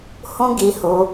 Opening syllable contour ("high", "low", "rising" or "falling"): high